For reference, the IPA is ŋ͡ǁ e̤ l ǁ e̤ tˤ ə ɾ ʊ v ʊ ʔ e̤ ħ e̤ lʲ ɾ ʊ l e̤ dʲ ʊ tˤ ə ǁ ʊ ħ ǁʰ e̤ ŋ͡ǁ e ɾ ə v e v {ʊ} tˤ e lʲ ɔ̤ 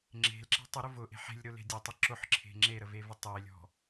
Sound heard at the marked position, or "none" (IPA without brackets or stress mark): ʊ